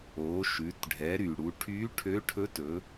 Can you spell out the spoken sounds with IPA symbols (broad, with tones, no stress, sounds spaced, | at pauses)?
o˩˧ ʃ ʉ˩˧ t ɖʱ ɛ˩˧ ɾ y˩ ɽ u˩˧ ʈʰ y˧˥ ʈʰ ø˧˥ ʈʰ ɵ˧˥ t ɵ˩˧